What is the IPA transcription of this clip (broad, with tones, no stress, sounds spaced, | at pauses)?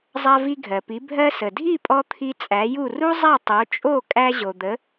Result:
zˤ a˧ v i˧ ɡʱ ɜ˩ p i˩˥ bʱ ɜ˧ s ə˩ dʱ i˥˩ pʼ ɔ˧ t̪ʰ i˧ t͡sʼ æ˩˥ j u˥˩ r u˥ zˤ a˥˩ tˤ o˩˥ t͡ʃʼ o˥˩ kʼ æ˧ ʑ o˩ d̪ ə˩˥